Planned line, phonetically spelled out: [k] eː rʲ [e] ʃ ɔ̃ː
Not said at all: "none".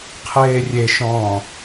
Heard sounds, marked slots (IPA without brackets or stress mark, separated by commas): qʰ, e